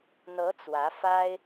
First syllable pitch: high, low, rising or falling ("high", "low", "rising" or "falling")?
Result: rising